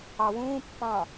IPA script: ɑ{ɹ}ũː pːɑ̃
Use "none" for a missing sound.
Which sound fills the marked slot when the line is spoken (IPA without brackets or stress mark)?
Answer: w